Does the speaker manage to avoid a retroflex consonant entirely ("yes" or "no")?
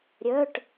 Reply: no